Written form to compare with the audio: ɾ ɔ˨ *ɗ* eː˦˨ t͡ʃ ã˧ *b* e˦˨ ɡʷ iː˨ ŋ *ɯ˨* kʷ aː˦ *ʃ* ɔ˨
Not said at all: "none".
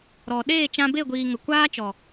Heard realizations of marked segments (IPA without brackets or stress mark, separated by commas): ɗ, b, ə˨, t͡ʃ